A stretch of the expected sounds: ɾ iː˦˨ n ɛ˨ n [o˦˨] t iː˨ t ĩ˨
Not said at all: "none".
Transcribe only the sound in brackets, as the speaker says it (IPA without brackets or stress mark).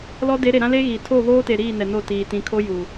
o˦˨